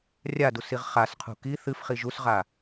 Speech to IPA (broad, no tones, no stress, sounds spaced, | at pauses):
rʲ a d u s i ʁ χ a s qʰ ṳ k i θ ɨ f χ i ʒ u s ʁ a